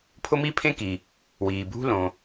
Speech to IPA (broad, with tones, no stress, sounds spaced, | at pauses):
pʰ ʊ˥ m i˥ pʰ ẽ˥ k i˩ | w iː˩ bʱ ṳ˥ l õ˩